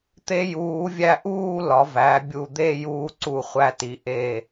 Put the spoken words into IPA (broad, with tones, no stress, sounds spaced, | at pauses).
t̪ e˧ j uː˩˧ vʲ æ˧ ʔ uː˥˧ l ɒ˩˧ v æ˩˧ bʲ u˧˩ d̪ e˥˧ j uː˧ ǀ u˧˩ χʷ æ˧ t i˩˧ ʔ e˧˩